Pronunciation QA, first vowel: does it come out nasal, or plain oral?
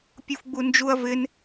oral